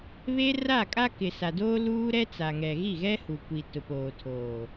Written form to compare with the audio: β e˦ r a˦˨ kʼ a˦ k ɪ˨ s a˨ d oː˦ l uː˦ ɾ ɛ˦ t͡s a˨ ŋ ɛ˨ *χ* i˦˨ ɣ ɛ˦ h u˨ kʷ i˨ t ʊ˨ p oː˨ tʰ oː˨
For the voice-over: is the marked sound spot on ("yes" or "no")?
no